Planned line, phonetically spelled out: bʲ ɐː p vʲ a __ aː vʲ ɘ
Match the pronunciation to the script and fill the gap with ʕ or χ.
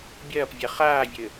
χ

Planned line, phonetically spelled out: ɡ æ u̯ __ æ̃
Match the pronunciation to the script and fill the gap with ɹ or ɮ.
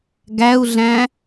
ɮ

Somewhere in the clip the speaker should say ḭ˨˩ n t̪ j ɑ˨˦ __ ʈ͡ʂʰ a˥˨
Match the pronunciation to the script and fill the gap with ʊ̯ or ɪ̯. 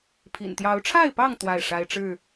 ʊ̯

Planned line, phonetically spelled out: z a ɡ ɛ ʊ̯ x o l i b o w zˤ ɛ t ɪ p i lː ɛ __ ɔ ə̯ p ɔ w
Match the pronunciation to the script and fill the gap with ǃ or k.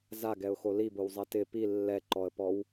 ǃ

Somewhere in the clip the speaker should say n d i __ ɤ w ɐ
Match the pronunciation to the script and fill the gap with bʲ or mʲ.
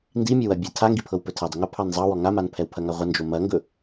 mʲ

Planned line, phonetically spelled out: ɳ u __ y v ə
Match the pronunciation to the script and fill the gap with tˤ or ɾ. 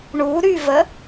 ɾ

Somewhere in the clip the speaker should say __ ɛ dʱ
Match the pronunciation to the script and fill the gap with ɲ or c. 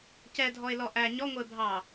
c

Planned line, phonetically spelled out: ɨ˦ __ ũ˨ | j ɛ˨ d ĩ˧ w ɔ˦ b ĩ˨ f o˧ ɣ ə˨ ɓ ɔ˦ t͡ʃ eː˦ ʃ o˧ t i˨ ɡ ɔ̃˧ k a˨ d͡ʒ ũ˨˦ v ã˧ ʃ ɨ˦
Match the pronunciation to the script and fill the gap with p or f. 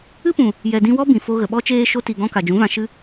p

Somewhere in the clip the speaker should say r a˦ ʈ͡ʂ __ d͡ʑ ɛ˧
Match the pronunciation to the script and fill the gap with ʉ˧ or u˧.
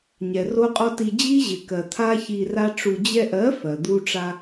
u˧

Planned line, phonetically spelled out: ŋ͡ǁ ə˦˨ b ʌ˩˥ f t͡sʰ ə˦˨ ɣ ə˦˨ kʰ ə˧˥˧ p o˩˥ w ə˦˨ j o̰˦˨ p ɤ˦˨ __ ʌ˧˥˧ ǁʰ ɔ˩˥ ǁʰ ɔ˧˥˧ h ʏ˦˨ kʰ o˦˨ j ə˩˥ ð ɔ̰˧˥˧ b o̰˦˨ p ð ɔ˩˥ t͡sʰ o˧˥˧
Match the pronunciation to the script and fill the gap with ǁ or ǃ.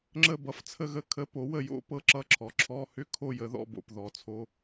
ǁ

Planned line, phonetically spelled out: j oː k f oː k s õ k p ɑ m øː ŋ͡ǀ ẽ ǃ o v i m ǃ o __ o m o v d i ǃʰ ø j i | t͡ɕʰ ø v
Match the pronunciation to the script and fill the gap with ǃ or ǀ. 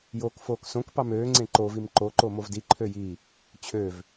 ǃ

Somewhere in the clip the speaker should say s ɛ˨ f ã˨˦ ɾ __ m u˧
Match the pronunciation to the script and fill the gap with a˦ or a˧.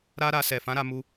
a˧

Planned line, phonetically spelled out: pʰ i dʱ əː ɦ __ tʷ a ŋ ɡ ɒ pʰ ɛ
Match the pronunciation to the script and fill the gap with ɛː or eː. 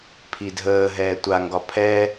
ɛː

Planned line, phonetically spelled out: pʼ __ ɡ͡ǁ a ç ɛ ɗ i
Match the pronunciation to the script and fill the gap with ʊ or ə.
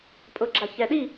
ʊ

